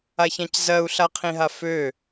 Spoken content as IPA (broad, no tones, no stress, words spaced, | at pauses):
açãczɜu̯ ɬaqʰĩɦafø